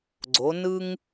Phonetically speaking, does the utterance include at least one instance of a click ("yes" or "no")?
yes